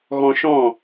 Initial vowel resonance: nasal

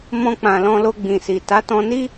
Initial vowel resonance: nasal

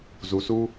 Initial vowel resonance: oral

